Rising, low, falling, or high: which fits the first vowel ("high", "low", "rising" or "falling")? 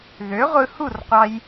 rising